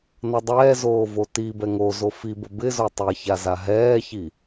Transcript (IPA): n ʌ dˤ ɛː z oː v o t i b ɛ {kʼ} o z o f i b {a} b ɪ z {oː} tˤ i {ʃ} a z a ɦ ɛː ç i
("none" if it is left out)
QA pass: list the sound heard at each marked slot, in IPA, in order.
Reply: ŋ, ə, o, ç

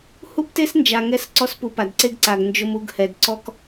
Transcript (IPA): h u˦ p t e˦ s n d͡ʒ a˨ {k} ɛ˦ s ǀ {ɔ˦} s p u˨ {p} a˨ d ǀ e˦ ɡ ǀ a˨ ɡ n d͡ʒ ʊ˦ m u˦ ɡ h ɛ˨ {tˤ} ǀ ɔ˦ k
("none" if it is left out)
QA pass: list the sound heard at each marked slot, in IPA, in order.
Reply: ŋ, ɔ˦, p, d

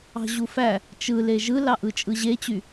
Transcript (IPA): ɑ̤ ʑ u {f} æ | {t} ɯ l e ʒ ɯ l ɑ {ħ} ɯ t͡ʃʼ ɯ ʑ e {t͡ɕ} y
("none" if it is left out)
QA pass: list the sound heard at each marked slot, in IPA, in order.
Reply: f, t͡ʃ, ʔ, t͡ɕ

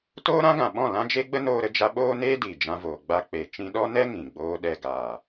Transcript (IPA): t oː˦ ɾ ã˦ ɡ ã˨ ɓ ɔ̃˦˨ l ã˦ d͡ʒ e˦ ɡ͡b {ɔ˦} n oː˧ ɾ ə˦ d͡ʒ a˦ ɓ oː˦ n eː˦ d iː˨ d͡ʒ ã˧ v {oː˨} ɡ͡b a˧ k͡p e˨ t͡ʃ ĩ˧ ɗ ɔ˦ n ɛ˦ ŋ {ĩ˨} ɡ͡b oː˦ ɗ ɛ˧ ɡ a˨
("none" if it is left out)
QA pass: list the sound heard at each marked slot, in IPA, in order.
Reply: ə˦, oː˨, ĩ˨

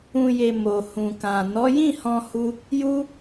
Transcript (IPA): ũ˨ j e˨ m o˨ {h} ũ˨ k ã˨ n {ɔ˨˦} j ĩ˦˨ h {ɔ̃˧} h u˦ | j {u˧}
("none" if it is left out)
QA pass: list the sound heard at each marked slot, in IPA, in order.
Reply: h, ɔ˨˦, ɔ̃˧, u˦

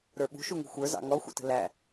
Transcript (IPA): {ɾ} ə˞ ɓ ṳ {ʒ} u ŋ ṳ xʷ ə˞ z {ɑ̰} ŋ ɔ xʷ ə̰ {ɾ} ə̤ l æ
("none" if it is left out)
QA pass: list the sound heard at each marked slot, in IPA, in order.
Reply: ɾ, ʃ, ɑ̰, t

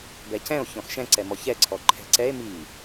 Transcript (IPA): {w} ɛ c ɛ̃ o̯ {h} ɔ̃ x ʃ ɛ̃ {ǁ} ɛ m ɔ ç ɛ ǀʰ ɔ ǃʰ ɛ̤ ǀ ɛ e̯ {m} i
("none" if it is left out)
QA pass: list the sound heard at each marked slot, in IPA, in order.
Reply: b, ç, ǀ, m

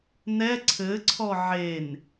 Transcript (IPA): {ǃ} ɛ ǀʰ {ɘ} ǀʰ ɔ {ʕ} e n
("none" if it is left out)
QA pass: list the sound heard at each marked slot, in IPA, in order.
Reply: n, ɘ, ʕ

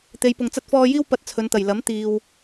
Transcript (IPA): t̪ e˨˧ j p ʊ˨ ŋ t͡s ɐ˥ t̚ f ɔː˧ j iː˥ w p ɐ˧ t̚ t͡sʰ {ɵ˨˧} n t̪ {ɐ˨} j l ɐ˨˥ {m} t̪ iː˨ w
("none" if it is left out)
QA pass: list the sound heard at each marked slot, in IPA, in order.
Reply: ɵ˨˧, ɐ˨˩, m

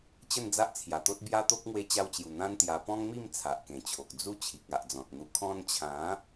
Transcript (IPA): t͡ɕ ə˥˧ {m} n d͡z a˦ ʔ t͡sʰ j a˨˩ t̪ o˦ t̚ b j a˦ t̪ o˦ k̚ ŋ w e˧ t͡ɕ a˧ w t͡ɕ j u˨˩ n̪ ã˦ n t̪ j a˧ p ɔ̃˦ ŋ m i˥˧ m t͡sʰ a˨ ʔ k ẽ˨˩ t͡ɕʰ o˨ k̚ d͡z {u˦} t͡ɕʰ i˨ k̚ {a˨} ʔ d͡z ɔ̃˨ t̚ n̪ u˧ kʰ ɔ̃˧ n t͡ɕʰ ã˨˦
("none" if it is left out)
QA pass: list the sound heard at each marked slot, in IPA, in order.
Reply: none, u˦, a˨

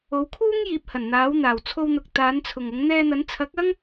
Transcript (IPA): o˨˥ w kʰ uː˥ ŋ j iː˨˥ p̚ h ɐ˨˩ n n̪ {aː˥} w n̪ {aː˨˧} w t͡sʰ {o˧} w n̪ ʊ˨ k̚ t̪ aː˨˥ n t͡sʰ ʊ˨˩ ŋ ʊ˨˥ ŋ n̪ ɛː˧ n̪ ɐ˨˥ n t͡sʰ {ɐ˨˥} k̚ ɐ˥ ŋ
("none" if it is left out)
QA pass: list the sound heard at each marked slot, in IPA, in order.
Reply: aː˨˥, aː˨˩, o˧, ɐ˨˥

